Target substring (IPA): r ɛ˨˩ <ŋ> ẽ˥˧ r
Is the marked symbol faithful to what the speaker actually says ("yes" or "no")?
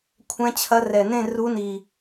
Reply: no